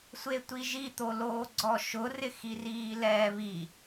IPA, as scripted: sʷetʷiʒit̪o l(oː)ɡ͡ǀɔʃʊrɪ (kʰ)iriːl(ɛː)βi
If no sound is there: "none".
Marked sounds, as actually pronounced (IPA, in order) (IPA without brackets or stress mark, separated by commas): oː, x, ɛː